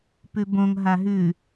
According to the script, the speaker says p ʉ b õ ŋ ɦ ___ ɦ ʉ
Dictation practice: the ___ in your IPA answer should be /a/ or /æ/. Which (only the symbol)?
a